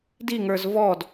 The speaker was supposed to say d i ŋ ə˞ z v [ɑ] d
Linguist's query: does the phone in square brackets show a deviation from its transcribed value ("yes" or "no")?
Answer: yes